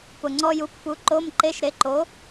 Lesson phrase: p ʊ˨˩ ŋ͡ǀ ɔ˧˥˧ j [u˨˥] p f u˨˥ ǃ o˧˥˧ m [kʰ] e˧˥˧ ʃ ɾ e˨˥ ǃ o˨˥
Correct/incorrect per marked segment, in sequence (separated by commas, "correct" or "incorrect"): correct, incorrect